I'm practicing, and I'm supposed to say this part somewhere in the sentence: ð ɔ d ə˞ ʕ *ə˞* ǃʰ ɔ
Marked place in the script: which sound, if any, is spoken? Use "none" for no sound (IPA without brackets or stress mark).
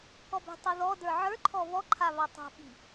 ə˞